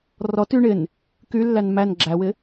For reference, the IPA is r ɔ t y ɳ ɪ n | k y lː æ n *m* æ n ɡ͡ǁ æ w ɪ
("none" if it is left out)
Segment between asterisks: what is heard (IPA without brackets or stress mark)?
m